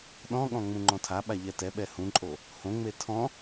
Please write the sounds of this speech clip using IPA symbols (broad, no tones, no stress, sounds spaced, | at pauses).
ɗ ɔ̃ ɠ ɔ̃ ŋ͡m ũ ŋ͡ǃ ɔ̃ tʰ a ɓ a ʎ ɛ t ɛ ɓ ɛ h ũ ǃʼ o | h õ ŋ͡m e tʰ ɔ̃